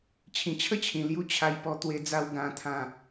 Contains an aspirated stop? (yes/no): yes